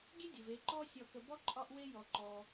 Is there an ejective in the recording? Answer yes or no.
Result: yes